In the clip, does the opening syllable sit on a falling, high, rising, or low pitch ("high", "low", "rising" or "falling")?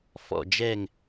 falling